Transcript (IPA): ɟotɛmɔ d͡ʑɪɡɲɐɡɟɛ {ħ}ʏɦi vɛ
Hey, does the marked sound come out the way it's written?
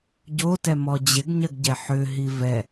yes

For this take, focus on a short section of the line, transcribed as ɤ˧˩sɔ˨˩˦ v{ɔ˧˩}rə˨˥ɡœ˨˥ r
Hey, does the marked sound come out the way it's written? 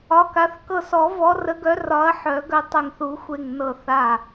no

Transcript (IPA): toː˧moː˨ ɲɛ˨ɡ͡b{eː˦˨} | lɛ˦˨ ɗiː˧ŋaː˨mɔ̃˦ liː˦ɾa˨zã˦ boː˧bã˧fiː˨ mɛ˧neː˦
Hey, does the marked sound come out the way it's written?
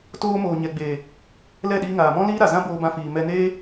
no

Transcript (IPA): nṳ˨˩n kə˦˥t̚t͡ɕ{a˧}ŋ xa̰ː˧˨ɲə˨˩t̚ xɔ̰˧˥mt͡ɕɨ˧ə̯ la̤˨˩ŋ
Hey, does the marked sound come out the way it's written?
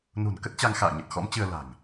yes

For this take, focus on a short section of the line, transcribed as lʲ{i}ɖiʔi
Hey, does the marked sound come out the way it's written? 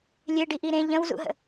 no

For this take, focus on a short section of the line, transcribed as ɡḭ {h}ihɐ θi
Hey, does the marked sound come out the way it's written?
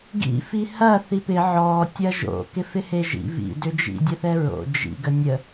no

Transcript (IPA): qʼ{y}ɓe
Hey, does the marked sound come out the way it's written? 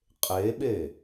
no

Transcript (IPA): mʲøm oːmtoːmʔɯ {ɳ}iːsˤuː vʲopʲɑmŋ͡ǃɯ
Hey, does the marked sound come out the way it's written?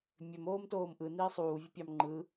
no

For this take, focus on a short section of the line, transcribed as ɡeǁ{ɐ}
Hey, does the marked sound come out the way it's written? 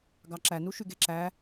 no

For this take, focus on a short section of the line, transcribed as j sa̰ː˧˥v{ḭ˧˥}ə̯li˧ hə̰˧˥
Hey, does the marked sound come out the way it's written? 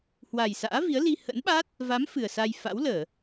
no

